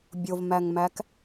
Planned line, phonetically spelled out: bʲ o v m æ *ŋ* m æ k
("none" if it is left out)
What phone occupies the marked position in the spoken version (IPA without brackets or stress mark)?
ŋ